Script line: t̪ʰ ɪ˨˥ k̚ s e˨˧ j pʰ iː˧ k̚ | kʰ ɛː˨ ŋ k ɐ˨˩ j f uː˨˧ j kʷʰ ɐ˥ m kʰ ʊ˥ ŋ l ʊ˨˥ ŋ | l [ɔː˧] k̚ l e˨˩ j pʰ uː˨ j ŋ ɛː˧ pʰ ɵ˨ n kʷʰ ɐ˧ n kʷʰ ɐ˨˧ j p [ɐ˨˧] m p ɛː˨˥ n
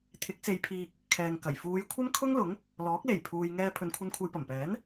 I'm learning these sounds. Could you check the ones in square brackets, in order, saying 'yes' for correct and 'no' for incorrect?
no, no

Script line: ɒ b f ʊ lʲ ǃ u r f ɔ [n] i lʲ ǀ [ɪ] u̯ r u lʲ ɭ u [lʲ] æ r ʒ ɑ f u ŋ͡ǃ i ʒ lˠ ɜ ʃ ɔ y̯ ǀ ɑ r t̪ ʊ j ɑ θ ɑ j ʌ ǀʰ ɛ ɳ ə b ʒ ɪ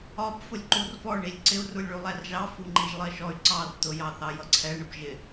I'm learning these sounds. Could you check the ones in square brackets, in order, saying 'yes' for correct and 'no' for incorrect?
no, yes, no

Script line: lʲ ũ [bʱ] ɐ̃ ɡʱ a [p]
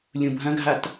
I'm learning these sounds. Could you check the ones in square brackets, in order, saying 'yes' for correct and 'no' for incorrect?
yes, no

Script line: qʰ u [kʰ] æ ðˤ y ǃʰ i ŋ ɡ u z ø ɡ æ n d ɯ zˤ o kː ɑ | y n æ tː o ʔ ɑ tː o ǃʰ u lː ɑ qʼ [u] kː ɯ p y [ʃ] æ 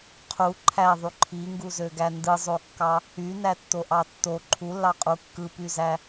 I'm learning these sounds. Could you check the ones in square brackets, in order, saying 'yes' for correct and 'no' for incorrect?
no, yes, no

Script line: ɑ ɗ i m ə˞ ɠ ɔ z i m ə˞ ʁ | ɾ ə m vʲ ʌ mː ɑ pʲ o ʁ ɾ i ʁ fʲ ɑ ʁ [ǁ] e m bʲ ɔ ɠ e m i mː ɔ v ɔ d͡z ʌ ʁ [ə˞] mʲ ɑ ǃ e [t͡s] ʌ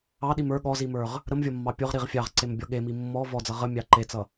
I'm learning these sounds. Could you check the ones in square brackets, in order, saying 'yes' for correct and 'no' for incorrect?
no, no, yes

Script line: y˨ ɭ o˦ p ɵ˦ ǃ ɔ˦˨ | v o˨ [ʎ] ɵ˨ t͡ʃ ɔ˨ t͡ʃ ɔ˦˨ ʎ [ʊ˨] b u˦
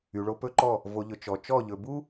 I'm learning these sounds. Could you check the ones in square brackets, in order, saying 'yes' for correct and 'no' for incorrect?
yes, no

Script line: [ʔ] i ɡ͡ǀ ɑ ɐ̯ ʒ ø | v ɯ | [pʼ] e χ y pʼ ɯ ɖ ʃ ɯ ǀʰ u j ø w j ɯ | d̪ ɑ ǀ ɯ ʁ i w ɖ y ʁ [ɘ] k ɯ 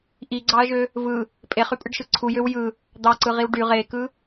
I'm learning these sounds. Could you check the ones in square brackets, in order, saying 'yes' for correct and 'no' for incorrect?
yes, yes, no

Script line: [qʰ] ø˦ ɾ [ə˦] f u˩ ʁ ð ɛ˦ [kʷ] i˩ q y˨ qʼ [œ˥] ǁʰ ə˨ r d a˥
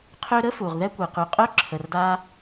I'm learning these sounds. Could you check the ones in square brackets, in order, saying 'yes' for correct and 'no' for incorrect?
yes, no, yes, yes

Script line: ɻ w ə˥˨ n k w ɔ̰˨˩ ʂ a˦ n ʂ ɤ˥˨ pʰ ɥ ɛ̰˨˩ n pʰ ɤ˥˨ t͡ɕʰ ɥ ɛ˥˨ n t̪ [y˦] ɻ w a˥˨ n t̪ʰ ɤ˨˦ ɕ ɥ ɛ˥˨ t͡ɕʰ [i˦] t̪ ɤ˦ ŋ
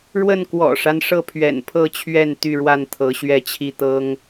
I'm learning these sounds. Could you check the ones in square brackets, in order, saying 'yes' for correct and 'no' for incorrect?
no, yes

